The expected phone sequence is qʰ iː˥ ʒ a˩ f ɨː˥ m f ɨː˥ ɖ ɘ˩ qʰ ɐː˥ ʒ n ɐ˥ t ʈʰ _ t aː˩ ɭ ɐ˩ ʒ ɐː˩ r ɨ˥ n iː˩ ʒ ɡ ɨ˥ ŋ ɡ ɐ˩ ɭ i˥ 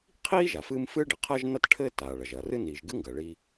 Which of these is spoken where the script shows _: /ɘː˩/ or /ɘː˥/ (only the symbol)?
ɘː˥